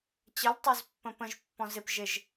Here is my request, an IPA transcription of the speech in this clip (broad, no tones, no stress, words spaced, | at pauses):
t͡ɕəltˤozpːə̃ pə̃ʒpːɔ̃ zɪp ʒɪʒ